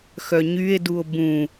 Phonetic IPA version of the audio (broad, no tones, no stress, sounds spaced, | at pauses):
x œ ɲ y e̯ d u o̯ b ũ